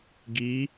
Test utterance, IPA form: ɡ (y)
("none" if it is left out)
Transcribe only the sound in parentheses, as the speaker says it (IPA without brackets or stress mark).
i